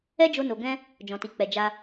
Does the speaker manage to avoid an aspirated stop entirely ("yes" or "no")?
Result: yes